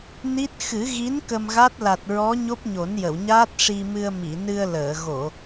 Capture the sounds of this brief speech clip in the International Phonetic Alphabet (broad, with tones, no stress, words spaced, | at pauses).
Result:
ni˦˥t̚ xɨ˨˩˦ɣi˧˥n kə˧mɣa˦˥t̚ la˨˩t̚ɹɔ˧˥ ɲo˦˥p̚ɲo˨˩˦njə˨˩˨wɲaː˦˥t̚ ʂi˧mɨ˧ə̯ mi˨˩˨nɨ˧ə̯ləː˨˩˨ ɣo˨˩˨